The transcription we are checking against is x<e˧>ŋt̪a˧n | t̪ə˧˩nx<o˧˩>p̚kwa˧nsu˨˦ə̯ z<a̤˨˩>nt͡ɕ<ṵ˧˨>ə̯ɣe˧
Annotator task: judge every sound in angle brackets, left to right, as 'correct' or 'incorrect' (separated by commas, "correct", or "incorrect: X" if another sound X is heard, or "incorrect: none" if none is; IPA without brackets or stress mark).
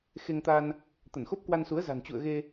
correct, incorrect: o˦˥, correct, correct